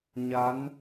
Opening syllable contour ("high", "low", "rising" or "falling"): rising